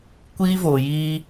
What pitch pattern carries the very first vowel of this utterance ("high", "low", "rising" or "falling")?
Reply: high